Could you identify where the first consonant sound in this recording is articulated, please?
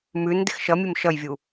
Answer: labial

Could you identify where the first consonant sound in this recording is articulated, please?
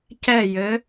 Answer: palatal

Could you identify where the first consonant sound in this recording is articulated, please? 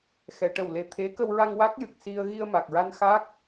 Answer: velar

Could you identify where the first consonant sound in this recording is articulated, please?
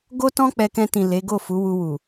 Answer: velar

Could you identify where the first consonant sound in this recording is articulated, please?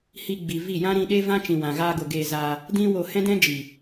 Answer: glottal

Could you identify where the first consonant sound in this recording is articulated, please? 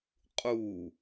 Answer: uvular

